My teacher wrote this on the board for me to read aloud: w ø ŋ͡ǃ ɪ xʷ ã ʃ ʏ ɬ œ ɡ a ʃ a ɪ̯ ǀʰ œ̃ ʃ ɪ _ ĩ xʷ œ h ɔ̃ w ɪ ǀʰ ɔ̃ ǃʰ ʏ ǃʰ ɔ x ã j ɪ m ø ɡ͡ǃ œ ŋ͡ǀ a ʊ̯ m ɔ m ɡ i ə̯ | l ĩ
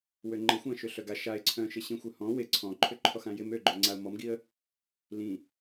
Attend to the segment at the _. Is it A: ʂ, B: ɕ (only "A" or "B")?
B